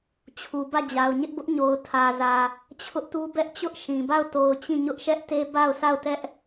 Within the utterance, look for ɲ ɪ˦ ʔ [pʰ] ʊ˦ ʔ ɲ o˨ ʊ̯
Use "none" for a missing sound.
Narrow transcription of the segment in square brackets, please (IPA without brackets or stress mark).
b